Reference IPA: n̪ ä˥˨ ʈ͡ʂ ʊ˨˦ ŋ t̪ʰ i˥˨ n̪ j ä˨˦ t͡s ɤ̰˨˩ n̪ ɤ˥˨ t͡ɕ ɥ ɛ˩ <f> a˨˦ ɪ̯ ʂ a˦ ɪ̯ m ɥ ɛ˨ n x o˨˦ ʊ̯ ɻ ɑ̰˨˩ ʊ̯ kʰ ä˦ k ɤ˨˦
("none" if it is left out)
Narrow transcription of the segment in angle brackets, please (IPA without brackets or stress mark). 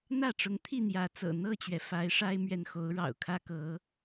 f